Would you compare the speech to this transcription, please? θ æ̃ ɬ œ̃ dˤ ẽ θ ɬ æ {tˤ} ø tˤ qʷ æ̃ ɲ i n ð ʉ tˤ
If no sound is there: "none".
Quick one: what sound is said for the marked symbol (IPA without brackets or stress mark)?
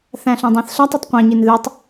tˤ